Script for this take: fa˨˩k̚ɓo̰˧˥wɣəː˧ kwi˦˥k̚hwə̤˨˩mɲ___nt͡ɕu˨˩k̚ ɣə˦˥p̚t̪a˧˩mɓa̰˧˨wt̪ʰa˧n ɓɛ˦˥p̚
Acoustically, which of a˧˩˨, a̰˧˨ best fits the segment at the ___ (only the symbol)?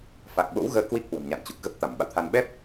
a̰˧˨